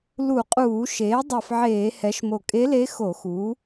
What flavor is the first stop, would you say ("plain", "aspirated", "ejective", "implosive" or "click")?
ejective